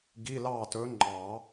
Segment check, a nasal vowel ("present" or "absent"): absent